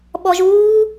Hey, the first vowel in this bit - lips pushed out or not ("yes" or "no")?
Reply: yes